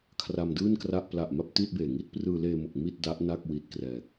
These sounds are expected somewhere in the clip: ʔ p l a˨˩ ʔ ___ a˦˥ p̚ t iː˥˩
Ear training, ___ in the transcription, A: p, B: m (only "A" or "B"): B